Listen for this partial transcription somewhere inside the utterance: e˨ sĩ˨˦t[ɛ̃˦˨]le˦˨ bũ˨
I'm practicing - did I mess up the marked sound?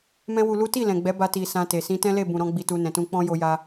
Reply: yes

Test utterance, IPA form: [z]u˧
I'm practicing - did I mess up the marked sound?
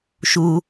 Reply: yes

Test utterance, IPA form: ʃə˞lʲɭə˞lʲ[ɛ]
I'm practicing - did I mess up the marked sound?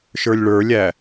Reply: yes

